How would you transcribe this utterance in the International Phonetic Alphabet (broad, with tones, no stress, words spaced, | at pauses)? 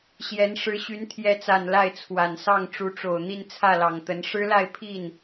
ɕjɛ˧˥nʂɻ̩˧˥ɕy˧˥n t̪ʰjɛ˧˥t͡sa˨˩n la˥˩ɪ̯t͡sʰwa˨˩nsɑ˥˩ŋ ʈ͡ʂu˧˥ʈ͡ʂo˨˩ʊ̯ n̪i˥˧nt͡sʰä˥˩lɑ˨˩ŋt̪ə˧˥n ʂɻ̩˥la˥˧ɪ̯pʰi˥˩n